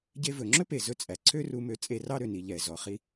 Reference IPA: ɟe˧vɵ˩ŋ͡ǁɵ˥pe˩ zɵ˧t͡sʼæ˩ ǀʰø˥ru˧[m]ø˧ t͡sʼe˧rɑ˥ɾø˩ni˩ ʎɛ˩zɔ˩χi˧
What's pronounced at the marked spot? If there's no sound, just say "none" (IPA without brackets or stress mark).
m